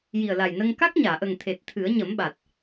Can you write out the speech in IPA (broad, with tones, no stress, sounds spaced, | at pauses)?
j i˨˩ ə̯ l a˨˩ j n ə˧ ŋ k a˦˥ k̚ ɲ aː˨˩˨ ʔ ə˨˩ ŋ t̪ʰ e˨˩ t̚ t̪ʰ ɨ˨˩˦ ə̯ ɲ ə˨˩˦ m ɓ a˨˩ t̚